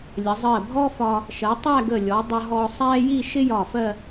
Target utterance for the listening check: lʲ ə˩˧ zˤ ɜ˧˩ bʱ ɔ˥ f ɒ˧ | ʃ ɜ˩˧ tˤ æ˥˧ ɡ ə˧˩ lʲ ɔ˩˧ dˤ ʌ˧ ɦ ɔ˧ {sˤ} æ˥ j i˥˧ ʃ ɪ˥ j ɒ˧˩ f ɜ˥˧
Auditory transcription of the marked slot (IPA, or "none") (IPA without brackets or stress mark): sˤ